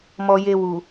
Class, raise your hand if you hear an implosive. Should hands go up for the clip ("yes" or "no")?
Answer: no